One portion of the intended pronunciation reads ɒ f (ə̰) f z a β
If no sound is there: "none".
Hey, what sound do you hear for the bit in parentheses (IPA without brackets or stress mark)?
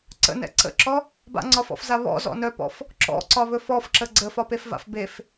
ɔ̰